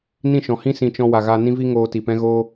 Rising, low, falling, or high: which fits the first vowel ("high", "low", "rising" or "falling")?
falling